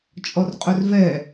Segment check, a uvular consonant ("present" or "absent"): present